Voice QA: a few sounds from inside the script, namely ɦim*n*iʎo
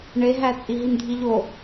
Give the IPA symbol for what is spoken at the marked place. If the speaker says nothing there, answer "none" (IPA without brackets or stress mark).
dʱ